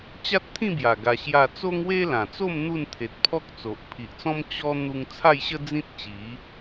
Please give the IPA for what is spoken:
t͡ɕa˦t̚t̪ʰĩ˥˧bja˨˩ ɡa˧ɕja˥˧ t͡so˦ŋwe˦lã˨˩t͡so˥˧m n̪u˥˧nt̪ʰe˨t̚pʰɔ˦k̚t͡so˨ʔ pʰi˨ʔt͡sɔ̃˦m t͡ɕɔ˦ n̪u˦ŋ t͡sʰa˥˧jɕə˦ d͡zĩ˦t̚t͡ɕi˨˦

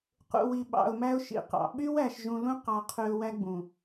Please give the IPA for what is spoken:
qṵ˨wi˨ɓɑ̰˨ʊ̯mæ˦ʊ̯ ʃḭ˨ qɑ̰˨ ɓy˦wæ˨ʃʒũ˨lũ˦ qɑ˦qʰy˦ʊ̯ wæ˦ɡ͡bũ˨

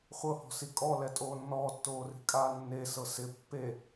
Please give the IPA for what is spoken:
χʷɤhɔ̤si kʼɔlɛtʼoː nːɔːtːoːri̤kʼaː nːesɤ sɪ pːe

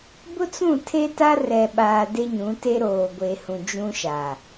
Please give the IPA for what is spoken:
bʊ˦t͡sũ˦˨ tʰe˦ta˦rɛ˨ɓaː˨ de˦ɲũ˨˦te˦ ɾoː˨ ɡʷe˨hũ˨ d͡ʒũ˦ʃa˨

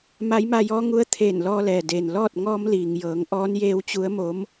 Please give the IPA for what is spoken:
ma˧˥jma˧jɔː˧˥ŋu˧˥ə̯ t̪ʰeː˧˩nlɔː˧lɛː˩deː˩n lɔː˥˨t̚ ŋɔː˧mliː˩ŋjɤː˩˧ŋ ʔɔː˧˥njeː˧˥wt͡ɕu˧˥ə̯mo˧˥m

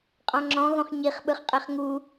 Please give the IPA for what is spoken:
qʼɔ̃ŋ͡ǁɔ̃ ɣõχɲiχ ɓɯχqʼeχŋu

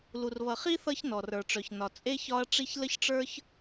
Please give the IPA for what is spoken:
lu˨rβʌ˨χi˥ θʌ˥çnɔ˩r ə˞˩ʈ͡ʂœ˩çnɒ˩ t͡sʼe˥çɒ˦ɐ̯ ʈ͡ʂi˦çlə˥çʈ͡ʂə˞˥ç

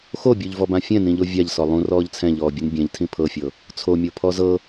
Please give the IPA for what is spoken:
xobʲuʎvɔbã fʲɛ̃nĩʎo vʲaʎsɔ lˠũrɔːʎ t͡sʰɛ̃ʎɔːbʲɯn bʲɛ̃ʎtʰĩ pʰɤfʲɤ | t͡sʰomʲopʰɔ zɤ

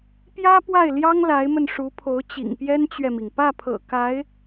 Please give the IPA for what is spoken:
pjä˥pwa˥˩ɪ̯ljɑ˥ŋ la˧˥ɪ̯mə˧n ʂu˧˥pʰo˧˥ʊ̯ t͡ɕḭ˨˩ŋpjɛ˥nt͡ɕɥɛ˨mi˩ŋ pä˥˩pʰɤ̰˨˩ ka˧˥ɪ̯

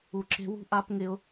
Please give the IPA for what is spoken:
u˨ǁe̤˧wṳ˦ ʔa˧p ŋɪ˦ʊ̯

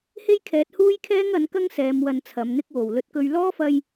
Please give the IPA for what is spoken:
he˥jkʰɛː˨˥t̚huː˥jkʰɛː˥ŋ ɐ˨˥nkɐ˥ŋ sɛː˨˧mwɐ˧nt͡sʰɐ˨˧m n̪ɪ˧k̚wo˨˩w lɵ˧t̚kɵ˧ɥ lɔː˥fɐ˧j

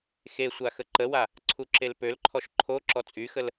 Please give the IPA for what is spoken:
xesʷa xəǃəwa | ǀʰuǁelpølǃʰɔʃ ǃʰo ǁɔt͡sʼyxəl

